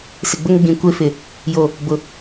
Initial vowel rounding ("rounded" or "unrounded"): unrounded